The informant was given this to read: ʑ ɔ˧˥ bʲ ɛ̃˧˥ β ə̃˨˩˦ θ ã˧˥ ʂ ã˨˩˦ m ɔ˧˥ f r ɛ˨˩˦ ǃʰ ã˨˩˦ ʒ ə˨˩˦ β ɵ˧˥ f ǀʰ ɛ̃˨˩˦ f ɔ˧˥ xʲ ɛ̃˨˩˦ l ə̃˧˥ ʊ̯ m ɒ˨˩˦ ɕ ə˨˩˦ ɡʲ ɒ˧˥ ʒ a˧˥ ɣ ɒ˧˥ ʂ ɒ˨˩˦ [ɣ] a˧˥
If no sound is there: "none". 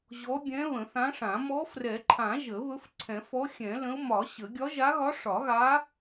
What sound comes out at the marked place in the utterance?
ɣ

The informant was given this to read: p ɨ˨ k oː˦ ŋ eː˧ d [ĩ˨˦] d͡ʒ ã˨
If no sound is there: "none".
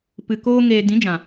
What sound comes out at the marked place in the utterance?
ĩ˨˦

